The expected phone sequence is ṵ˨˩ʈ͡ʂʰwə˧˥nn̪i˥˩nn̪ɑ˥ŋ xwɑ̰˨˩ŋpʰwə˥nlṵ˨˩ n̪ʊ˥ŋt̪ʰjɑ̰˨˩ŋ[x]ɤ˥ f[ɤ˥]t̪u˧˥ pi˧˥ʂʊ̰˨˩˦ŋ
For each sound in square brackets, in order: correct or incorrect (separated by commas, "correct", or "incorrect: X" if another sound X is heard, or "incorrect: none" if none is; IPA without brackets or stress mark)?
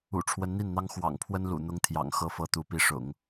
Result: correct, correct